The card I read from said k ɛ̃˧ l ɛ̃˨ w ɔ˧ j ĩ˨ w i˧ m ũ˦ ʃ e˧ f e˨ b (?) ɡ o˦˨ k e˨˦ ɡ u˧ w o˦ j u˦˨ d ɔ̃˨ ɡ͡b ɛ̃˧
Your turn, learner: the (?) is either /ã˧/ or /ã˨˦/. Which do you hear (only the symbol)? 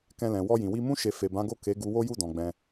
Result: ã˨˦